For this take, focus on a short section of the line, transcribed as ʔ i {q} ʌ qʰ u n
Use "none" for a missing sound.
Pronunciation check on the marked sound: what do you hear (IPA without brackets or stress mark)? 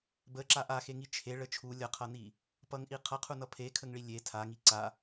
qʰ